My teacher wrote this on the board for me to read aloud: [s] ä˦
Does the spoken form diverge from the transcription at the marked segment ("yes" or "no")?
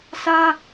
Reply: no